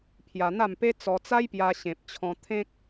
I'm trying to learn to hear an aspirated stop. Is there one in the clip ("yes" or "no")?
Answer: yes